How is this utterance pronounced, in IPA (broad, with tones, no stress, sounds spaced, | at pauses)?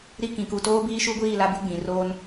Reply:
ɾ i˦ k ĩ˨ k u˨ t oː˦ b iː˦ ʃ u˦ ɡʷ iː˦˨ l a˦ b ɪ˦ ɡ͡b ĩ˨ r oː˦ n